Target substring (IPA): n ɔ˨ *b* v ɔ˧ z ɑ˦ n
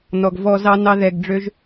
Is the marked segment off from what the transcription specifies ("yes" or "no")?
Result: yes